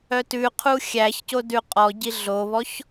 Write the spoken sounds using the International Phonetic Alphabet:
œtʉqʰu xʲæçco dʉqʼɔɟi ɮoβɔç

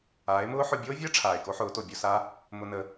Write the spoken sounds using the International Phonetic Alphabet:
aː˨˦e̯mʊː˦ħʊ˧ bʲoː˦vʲəː˦ ʈ͡ʂʰaː˨e̯ko˦ħʊː˨˦to˨ bʲo˧sa˦ | mʊ˧nə˧

